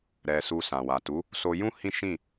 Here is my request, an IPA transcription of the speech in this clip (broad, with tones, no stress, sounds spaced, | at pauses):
ɾ ɛ˧ s u˧ s ã˨ w a˨ t u˨˦ | s o˧ j ũ˦ h ĩ˦ ʃ ĩ˦˨